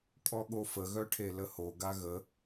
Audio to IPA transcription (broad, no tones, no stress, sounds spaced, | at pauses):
kʼ ɔ ɠ o f ə ɣ œ ʈʰ e l ə h o ɡ a ɣ ə